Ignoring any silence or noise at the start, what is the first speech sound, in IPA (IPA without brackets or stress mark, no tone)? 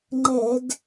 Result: ŋ͡ǃ